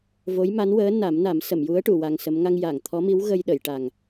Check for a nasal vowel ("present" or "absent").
absent